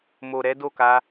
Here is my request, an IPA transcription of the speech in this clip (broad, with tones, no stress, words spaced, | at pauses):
mo˨ɾɛ˨˦do˦˨ka˧